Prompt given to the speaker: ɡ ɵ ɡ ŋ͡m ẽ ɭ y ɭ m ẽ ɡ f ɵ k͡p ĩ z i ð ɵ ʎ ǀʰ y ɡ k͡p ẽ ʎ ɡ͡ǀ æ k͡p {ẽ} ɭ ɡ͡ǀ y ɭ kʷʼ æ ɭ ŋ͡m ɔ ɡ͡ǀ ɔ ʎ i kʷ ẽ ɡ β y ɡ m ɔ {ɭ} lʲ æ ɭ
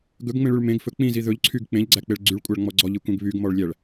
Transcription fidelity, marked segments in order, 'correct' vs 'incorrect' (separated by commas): incorrect, correct